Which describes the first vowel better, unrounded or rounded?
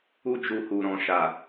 rounded